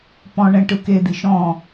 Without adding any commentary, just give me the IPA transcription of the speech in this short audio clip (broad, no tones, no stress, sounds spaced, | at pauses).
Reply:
p ɔ̃ ɳ ɛ̃ ʈ ɯ k e d̪ i ʃ ɔ̃